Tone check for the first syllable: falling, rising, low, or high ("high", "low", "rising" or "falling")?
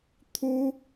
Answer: high